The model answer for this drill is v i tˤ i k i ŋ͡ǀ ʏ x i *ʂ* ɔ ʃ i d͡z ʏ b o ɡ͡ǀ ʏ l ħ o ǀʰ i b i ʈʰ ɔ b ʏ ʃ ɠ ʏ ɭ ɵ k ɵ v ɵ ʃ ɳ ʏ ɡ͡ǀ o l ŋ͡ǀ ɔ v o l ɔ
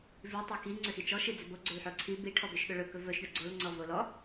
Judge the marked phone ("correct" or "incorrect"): incorrect